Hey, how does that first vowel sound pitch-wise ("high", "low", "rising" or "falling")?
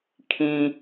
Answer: low